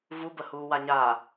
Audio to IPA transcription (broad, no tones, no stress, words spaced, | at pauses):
vubəhuː waɲa